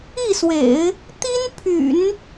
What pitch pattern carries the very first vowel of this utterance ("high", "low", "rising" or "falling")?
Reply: falling